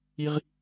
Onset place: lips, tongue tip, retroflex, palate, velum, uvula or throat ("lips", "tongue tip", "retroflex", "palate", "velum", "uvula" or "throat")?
uvula